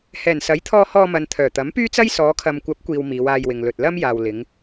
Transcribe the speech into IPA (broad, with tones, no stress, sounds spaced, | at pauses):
h ɛː˨˩ n s ɐ˨˥ j t̪ʰ ɔː˧ h ɔː˧ m ɐ˨ n t̪ʰ œː˨˩ t̪ ɐ˨˥ m p yː˥ t͡s ɐ˥ j s ɔː˨˧ kʰ ɐ˨ m kʷ ɐ˨˥ p̚ kʷ iː˨ w m iː˨˧ w aː˧ j w ɪ˨ ŋ l ɵ˨ t̚ l ɐ˥ m j aː˨ w l ɪ˨˧ ŋ